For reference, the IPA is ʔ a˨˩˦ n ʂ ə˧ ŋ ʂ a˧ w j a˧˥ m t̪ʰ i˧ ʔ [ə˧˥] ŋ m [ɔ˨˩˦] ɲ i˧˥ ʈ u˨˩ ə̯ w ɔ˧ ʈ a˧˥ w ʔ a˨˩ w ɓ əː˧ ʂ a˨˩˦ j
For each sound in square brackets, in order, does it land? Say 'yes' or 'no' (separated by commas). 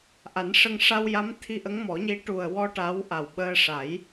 yes, yes